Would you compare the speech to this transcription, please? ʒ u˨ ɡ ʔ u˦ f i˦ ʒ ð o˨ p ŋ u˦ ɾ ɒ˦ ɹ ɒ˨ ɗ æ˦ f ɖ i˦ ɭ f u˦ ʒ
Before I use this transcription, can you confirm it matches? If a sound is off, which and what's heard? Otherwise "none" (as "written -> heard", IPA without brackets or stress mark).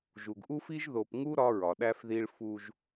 ɖ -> ð